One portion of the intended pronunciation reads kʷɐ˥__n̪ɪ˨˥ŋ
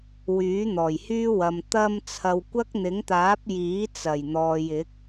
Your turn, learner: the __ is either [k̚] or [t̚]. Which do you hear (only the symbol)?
k̚